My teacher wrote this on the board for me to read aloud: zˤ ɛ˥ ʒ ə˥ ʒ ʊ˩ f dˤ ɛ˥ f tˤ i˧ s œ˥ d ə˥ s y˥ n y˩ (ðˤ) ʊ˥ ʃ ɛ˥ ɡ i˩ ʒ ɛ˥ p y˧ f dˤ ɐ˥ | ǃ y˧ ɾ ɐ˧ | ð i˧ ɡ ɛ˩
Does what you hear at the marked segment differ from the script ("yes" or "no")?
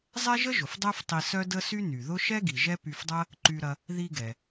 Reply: yes